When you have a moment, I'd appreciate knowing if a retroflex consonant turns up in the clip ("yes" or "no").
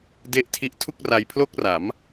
no